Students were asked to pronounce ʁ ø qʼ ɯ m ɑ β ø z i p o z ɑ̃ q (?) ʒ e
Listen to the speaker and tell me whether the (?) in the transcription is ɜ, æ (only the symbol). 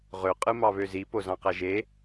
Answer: æ